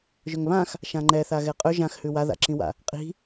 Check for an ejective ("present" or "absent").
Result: present